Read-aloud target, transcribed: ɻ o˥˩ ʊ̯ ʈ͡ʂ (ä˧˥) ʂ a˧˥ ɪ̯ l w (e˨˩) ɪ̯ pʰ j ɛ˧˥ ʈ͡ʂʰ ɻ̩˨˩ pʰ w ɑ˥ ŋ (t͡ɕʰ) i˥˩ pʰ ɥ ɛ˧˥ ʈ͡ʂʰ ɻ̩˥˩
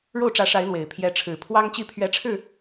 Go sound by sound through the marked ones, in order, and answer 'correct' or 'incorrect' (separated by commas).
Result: correct, correct, incorrect